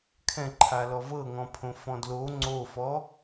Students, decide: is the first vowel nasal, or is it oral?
nasal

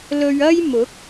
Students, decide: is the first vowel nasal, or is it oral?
oral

